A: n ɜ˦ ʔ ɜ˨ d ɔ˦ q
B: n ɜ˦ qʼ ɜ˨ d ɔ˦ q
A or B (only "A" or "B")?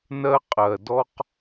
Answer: B